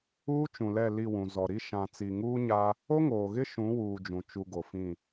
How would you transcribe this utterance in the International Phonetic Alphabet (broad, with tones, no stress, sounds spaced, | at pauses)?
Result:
uː˦ t͡ʃ ũ˨ l ɛ˦˨ l i˦˨ w ũ˨ z ɔ˨ ɾ i˦ ʃ ã˨ t͡s i˨ ŋ uː˦ ɲ a˦ | o˦ ŋ oː˨ ɣ ɪ˦ ʃ ũ˨˦ w uː˨ d͡ʒ ũ˨ t͡ʃ u˨ ɡ o˨ f ĩ˦˨